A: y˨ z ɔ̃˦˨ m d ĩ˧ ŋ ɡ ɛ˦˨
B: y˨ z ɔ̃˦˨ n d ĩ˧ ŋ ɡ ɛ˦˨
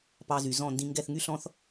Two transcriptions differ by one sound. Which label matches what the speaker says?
B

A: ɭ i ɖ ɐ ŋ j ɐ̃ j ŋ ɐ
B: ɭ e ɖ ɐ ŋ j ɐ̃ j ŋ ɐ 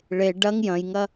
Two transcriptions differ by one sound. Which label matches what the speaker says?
B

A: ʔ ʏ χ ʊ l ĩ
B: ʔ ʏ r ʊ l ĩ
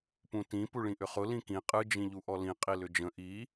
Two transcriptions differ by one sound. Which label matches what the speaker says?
A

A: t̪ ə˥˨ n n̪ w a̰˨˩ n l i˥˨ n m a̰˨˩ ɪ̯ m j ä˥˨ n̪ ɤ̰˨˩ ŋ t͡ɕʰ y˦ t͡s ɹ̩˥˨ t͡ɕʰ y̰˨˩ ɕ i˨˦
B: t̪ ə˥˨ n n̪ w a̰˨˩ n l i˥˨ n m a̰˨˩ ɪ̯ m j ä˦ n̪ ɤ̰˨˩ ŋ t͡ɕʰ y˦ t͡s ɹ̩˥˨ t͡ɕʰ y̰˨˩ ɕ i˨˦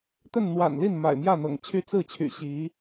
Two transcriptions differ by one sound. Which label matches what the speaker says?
A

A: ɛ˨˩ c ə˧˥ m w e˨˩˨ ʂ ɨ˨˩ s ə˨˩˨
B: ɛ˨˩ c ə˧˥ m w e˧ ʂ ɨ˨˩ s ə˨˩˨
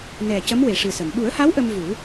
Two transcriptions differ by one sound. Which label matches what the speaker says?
A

